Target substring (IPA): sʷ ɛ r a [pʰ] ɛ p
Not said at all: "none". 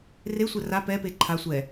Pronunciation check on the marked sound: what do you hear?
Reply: p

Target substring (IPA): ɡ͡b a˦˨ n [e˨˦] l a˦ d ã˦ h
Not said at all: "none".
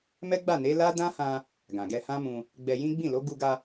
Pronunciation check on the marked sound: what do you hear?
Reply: e˨˦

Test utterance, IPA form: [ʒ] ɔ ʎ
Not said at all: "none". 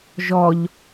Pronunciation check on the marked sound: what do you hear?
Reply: ʒ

